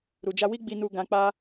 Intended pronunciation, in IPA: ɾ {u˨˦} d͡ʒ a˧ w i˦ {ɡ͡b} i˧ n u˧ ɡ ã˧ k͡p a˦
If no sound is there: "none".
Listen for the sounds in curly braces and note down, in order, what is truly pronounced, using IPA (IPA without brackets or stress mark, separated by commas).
u˨, ɡ͡b